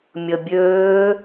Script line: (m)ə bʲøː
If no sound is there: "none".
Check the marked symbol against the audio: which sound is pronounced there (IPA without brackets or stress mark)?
mʲ